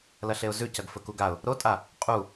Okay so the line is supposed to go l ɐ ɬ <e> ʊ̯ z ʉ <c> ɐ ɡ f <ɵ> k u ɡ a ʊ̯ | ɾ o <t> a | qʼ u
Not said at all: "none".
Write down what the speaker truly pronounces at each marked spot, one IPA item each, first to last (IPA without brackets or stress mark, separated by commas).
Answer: e, c, ɵ, tʼ